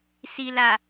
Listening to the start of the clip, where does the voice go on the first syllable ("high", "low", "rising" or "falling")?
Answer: low